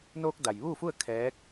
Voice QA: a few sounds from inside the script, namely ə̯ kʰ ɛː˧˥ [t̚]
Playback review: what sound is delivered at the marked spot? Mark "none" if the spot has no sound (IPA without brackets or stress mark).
k̚